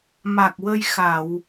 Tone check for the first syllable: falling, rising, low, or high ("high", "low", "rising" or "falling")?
low